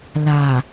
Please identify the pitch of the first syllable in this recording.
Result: low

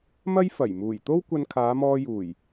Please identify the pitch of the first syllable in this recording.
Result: high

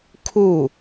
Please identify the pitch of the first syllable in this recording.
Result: falling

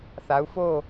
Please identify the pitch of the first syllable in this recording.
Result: rising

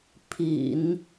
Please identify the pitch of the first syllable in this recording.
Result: low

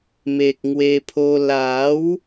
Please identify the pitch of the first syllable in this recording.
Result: low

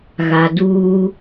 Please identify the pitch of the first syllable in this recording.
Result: low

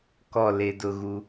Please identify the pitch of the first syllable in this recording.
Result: falling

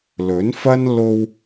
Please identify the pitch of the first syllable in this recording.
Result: rising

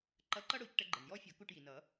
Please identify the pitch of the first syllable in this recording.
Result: rising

